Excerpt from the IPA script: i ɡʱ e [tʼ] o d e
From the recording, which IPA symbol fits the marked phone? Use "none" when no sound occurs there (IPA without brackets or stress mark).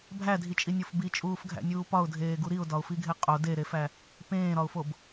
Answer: qʼ